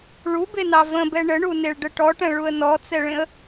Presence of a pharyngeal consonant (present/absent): absent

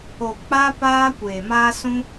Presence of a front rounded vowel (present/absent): absent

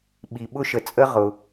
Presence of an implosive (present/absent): present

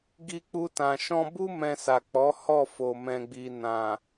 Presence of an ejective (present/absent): absent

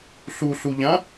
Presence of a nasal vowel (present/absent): present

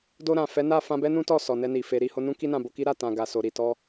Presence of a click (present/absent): absent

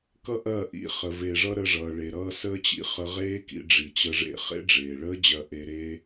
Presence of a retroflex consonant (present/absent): present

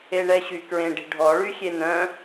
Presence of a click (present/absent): absent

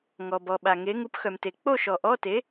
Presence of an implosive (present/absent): present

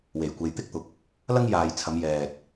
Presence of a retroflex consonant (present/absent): absent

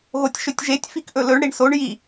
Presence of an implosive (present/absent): absent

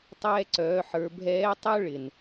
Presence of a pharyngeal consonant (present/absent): present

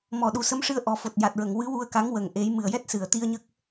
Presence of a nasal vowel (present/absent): absent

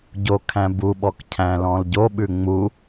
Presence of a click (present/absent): absent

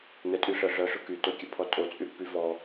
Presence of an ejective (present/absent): present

